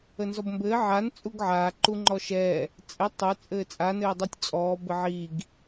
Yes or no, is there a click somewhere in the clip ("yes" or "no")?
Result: yes